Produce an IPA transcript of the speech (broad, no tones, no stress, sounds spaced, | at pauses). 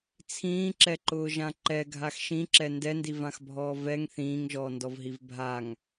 t͡sʰ ĩː ǁ ɛ ǃ ʊː ʒ ã ǃ ɛ ɡʱ a x ʃ ĩ ǁ ɛ n d ɛ n d i v ã x bʱ ɔː v ɛ ŋ θ ĩː ŋ ʒ ɔː n d ɔ v ɦ i v bʱ a ŋ